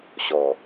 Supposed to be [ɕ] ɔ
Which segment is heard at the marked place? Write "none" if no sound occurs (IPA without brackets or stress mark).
ɕ